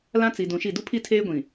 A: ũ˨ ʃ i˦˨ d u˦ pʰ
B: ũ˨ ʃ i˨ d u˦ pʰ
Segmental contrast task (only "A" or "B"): A